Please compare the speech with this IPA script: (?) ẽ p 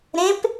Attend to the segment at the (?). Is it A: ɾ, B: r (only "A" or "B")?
A